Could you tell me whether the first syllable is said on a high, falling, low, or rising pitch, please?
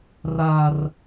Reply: high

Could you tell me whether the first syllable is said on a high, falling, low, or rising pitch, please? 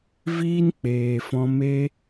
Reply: high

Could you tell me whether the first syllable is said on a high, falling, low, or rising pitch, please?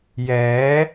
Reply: rising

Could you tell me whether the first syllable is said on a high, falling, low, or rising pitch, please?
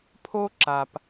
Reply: high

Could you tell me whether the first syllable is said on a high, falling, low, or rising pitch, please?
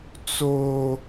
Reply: high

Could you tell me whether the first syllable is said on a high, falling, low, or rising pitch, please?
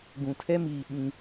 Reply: low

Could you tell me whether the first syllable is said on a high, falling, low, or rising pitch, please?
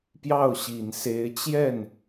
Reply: falling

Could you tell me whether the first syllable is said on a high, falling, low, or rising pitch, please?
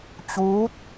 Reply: rising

